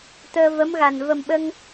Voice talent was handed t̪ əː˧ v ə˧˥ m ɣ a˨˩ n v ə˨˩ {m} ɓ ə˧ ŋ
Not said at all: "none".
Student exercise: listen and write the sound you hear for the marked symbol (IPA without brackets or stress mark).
m